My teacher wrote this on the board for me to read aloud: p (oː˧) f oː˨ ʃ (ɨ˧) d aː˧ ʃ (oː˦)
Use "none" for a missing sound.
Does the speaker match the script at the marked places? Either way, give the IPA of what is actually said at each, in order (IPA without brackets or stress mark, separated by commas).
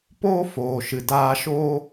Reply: oː˦, ɨ˨, oː˦